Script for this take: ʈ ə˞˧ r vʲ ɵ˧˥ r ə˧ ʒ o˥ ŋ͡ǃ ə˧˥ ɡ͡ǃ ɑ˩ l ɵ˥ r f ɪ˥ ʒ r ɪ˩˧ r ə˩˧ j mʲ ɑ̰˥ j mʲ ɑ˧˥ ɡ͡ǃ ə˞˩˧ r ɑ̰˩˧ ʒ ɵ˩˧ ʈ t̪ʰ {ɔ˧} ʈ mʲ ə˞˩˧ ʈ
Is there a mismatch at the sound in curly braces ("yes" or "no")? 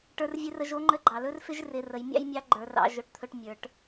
yes